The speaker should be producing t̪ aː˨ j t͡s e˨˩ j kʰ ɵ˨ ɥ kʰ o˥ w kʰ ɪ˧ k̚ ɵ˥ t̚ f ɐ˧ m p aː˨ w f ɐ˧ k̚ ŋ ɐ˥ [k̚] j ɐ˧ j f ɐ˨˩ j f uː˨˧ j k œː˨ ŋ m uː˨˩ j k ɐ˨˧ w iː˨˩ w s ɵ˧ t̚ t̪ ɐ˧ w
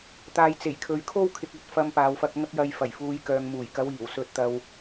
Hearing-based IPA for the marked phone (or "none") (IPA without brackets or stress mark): k̚